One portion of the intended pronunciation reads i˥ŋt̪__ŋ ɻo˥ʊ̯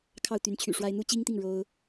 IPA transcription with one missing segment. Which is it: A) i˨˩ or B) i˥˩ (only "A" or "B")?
B